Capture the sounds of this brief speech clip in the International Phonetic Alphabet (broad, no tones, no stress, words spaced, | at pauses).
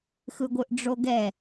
xɯɡʷɯʔɖ͡ʐoɡɛ